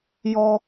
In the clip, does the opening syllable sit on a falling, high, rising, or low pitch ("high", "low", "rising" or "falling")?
high